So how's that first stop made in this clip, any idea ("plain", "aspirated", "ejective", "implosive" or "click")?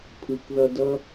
aspirated